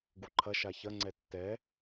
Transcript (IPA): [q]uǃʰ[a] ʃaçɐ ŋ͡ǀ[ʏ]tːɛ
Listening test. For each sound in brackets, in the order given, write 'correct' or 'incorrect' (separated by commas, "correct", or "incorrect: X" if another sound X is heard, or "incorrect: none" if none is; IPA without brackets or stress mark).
incorrect: ɡ, incorrect: ɐ, incorrect: ɛ